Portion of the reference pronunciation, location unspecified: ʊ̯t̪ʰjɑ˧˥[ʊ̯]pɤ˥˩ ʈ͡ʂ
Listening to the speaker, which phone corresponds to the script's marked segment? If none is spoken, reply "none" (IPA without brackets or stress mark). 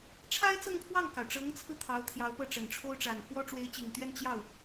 ʊ̯